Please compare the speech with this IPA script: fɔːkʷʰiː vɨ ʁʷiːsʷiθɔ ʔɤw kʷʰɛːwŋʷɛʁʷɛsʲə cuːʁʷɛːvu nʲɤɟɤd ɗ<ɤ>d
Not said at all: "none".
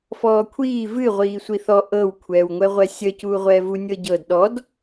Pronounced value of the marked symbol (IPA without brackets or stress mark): ɔ